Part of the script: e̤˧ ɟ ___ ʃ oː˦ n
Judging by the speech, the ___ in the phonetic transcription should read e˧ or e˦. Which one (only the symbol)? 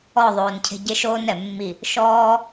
e˦